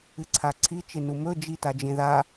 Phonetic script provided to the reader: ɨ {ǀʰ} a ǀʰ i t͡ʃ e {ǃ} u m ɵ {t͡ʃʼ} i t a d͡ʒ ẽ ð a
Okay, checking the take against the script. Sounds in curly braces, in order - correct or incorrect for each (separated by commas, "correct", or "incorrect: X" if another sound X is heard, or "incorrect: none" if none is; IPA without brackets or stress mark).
correct, incorrect: n, incorrect: d͡ʒ